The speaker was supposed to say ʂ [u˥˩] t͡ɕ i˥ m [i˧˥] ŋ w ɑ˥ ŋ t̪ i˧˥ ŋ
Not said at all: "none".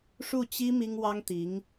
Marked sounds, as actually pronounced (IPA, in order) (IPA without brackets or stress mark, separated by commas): u˥˩, i˥